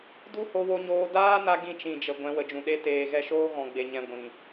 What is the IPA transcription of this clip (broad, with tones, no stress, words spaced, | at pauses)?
du˦ho˧wo˧ɲoː˧ daː˦na˧ ɡĩ˧t͡ʃĩ˨d͡ʒə˨ ɡʷɛ̃˨˦wə˨d͡ʒũ˨ ɗe˧teː˨ɣɛ˧ʃoː˦ ɣɔ̃˨ɡ͡be˨ɲɛ̃˨ ɡʷĩ˨